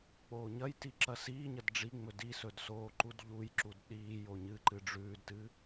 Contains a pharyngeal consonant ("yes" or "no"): no